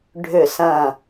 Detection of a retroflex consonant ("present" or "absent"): present